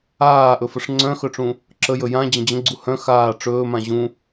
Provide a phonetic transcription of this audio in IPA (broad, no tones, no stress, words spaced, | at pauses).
aːʔɵfəʂ ŋ͡ǀœ̃xœʈ͡ʂũ | ǁəjɵ jãd͡ʑə̃ d͡ʑə̃ɡ͡ǀu hœ̃ xaː ʈ͡ʂɵːmã ʑũ